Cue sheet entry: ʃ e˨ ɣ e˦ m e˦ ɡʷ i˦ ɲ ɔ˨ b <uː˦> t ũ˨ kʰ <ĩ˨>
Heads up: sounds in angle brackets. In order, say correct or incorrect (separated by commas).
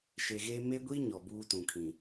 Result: correct, correct